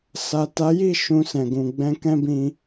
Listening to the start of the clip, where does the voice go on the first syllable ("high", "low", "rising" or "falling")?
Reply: low